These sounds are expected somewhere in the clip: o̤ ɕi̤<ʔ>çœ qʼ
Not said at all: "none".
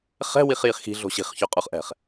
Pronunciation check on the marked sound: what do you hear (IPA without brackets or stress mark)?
χ